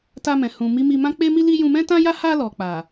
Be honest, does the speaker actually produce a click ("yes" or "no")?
no